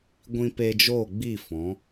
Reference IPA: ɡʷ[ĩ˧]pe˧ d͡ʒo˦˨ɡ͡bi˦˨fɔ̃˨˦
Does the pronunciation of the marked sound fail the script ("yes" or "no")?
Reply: no